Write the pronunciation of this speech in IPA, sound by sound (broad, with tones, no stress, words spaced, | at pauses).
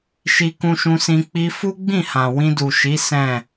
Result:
ʃi˧kũ˧ʃũ˧sĩ˧ k͡pi˧ fu˦ɡ͡bĩ˦˨hã˨ wĩ˧du˨ʃi˨˦ sɛ̃˦˨